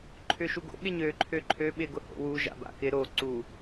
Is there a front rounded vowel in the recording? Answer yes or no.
yes